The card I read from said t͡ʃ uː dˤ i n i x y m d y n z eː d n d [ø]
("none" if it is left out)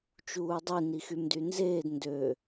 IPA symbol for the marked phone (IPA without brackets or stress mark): ø